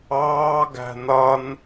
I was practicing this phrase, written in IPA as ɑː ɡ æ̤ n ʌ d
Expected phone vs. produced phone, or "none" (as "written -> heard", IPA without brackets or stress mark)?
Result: d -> n